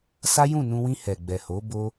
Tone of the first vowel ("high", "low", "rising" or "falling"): high